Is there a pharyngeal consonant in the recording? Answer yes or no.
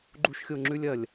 no